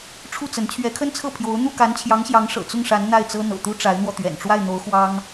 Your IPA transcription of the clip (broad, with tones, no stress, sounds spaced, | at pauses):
ʈ͡ʂʰ u˥˩ t͡s ə˧˥ n t͡ɕʰ ɥ ɛ˧˥ kʰ ə˥ n t͡sʰ ɤ˥˩ pʰ j o˧˥ ʊ̯ n̪ u˥˩ k a˧˥ n t͡ɕʰ j ɑ˧˥ ŋ ɕ j ɑ˧˥ ŋ ʂ ɤ̰˨˩ t͡s ʊ˥˩ ŋ ʂ a˧˥ n n̪ a˥˩ ɪ̯ t͡s ɤ˥ n̪ ɤ̰˨˩ t̪ u˥ ʈ͡ʂ a˧˥ ɪ̯ n̪ w ɔ˧ t̪ ɥ ɛ̰˨˩ n ʈ͡ʂ w a˥˩ ɪ̯ n̪ o˧˥ ʊ̯ x w ɑ˥ ŋ